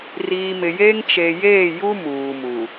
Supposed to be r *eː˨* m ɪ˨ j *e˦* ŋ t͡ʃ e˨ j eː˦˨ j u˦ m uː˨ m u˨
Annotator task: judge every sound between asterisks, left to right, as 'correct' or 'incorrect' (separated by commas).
incorrect, correct